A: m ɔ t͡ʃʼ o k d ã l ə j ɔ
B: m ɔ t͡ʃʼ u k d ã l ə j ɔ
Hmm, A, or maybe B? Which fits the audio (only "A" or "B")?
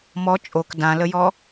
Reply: A